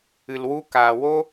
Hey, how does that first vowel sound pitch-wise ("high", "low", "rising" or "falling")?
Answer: low